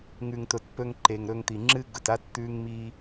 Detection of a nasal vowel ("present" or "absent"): absent